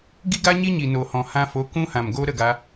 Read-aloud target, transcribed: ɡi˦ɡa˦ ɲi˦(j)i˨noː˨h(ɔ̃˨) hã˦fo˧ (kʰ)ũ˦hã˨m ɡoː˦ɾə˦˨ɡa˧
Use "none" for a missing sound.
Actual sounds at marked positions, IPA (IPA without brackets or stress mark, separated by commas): ɲ, ɔ̃˨, k